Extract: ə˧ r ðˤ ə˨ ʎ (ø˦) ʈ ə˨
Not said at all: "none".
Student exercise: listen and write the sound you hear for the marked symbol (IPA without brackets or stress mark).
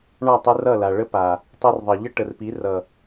ə˦